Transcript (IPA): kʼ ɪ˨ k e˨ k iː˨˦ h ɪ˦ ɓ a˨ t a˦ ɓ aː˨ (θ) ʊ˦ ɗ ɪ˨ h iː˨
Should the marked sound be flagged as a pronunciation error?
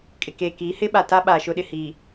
yes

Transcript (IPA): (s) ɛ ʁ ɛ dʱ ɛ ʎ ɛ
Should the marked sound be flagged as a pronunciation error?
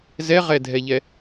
yes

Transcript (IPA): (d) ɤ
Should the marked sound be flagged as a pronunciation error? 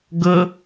yes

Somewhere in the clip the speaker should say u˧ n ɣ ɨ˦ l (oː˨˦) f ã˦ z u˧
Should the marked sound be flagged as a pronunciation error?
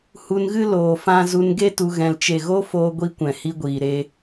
yes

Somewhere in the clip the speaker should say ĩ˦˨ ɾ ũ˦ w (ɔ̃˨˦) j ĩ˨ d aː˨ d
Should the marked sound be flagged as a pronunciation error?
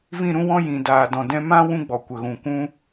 yes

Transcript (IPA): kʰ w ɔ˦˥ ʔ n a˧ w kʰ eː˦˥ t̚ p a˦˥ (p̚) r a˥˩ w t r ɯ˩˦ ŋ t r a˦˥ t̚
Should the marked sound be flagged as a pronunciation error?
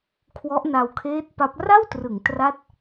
no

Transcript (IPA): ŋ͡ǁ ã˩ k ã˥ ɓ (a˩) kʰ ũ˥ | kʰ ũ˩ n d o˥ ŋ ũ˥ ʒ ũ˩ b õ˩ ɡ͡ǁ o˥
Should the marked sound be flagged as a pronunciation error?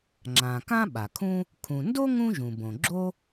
no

